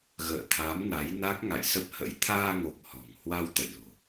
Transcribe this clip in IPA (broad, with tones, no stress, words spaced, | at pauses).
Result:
ɣə̰ː˧˨t̪ʰa˨˦mna˨˦jna˦˥k̚ ŋa̰˧˨jsə˦˥p̚hə̰˧˥j t̪ʰaː˧ŋo˨˩k̚ hɔ̤˨˩ŋ hwa˧w t̪ə̰˧˨jlo̤˨˩